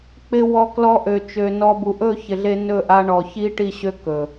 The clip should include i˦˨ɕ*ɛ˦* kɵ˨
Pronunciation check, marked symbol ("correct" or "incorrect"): incorrect